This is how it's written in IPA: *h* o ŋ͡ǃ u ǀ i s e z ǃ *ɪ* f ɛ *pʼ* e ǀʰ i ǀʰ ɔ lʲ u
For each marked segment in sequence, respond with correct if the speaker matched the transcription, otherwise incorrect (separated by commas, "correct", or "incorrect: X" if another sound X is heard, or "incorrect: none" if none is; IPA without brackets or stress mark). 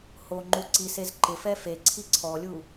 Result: correct, correct, incorrect: f